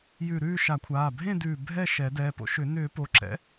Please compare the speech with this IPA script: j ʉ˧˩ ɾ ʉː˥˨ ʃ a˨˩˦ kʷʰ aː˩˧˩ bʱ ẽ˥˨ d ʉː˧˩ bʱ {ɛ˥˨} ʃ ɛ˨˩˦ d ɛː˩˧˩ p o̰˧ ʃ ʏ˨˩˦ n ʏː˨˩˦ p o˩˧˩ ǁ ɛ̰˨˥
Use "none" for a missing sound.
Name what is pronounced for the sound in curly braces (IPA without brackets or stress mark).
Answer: ɛ˥˨